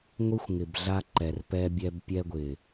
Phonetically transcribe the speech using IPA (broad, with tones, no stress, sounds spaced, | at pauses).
ŋʷ i˦ xʷ ŋ ɪ˨ b ɮ a˦ ǃ ɛ˨ r p ɛ˦ bʲ ɛ˦ b pʲ ɛ˦ ɡʷ ɪ˨